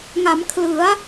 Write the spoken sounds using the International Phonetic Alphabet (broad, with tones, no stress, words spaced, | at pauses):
ŋa˩˦mkʰlɯ˩˦a̯